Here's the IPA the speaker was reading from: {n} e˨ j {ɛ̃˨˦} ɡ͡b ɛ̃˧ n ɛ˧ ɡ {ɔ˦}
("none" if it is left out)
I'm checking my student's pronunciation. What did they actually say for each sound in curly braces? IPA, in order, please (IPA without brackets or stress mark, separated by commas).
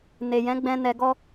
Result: n, ɛ̃˨˦, ɔ˦